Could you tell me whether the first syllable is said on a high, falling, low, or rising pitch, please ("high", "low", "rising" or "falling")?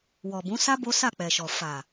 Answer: low